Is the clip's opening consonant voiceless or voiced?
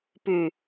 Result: voiceless